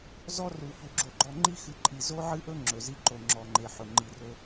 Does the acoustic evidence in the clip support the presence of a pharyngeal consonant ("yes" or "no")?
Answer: yes